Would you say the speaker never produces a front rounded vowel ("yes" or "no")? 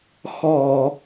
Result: yes